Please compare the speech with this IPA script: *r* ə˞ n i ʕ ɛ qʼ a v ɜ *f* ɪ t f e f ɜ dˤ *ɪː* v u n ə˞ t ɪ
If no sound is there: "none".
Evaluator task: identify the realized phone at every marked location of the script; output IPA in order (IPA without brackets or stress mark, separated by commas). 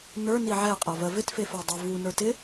n, v, ɪ